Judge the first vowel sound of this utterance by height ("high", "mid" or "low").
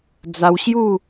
low